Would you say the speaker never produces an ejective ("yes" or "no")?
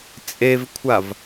no